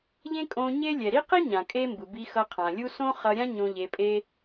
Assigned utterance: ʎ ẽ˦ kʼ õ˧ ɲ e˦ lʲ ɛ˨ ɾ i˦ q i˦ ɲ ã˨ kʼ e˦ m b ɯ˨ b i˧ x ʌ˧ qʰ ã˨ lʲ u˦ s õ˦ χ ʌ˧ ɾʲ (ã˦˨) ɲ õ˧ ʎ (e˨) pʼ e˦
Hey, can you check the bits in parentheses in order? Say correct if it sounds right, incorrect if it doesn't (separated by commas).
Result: incorrect, incorrect